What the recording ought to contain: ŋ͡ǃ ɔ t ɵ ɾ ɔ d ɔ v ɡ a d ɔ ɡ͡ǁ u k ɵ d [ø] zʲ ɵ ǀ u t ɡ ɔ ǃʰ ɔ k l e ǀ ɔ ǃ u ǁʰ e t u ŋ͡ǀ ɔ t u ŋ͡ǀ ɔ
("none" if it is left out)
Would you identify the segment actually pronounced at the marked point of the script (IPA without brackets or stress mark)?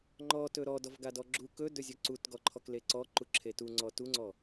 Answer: ɵ